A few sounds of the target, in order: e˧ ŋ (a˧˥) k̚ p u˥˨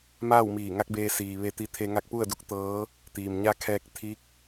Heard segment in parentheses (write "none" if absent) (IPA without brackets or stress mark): a˧˥